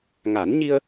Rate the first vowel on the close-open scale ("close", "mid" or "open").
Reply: open